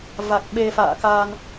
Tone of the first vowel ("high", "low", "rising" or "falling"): low